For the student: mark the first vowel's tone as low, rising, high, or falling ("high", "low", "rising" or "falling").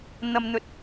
low